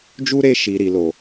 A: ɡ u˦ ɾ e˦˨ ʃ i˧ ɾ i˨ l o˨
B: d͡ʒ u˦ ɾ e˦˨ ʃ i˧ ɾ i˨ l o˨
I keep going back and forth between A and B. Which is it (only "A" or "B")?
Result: B